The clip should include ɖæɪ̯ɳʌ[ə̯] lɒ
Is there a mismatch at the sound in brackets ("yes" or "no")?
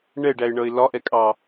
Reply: yes